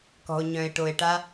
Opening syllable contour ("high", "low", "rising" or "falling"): low